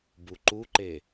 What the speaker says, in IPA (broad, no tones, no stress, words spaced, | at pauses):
buǃuǃe